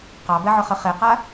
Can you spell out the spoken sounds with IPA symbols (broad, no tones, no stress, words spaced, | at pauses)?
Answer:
qɑbɛʕʊχə χeqa